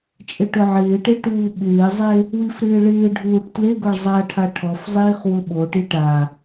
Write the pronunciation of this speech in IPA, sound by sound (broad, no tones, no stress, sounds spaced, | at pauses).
t͡ʃʼ ɪ ʈ ʊ ʕ ɪː ʈ e ʈ uː ɓ ɪː zˤ e | w i f ɾ ɪː ɭ ɪː ɖʱ uː ʈ t l e ɡ ʊ ɭ zˤ a ʈʰ a ʈʰ ɔ f zˤ iː χ w ʊ ɓ o ʈ i ʈ a